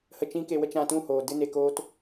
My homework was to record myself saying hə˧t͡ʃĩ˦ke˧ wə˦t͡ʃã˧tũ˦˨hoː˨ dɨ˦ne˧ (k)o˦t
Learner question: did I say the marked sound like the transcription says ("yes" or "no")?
yes